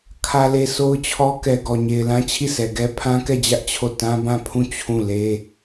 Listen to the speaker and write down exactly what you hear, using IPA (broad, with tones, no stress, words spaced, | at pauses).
kʰä˨le˨ so˦ʊ̯t͡ɕʰɔ˦ kɛ˨ɡɔ˨ɲe˨ɪ̯lã˦ t͡ɕʰi˦˨sɛ˨ɡɛ˦ pʰã˦kɛ˦˨d͡ʑä˦ʔ t͡ɕʰo˦˨ tã˦bã˦˨pʰũ˦˨ t͡ɕʰũ˦˨le˦